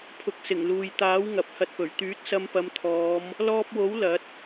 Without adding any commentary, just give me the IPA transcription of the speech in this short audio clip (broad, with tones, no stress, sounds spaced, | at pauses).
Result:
pʰ ʊ˨ k̚ s ɪ˨˩ ŋ l uː˨ j t̪ aː˨˥ w ŋ ɐ˨ p̚ h ɐ˧ t̚ p ɵ˨˩ ɥ t̪ yː˨˥ t̚ s ɐ˧ m p ɐ˨˧ m t̪ʰ ɔː˨˧ m | l ɔː˧ p̚ w o˨˥ w l ɐ˨˥ t̚